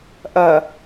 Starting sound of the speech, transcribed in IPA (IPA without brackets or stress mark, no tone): ʔ